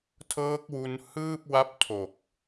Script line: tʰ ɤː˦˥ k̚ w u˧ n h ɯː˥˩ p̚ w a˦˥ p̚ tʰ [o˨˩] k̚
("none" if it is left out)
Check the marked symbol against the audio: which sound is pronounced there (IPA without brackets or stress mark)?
o˨˩